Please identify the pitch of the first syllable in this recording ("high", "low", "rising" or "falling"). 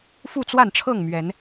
falling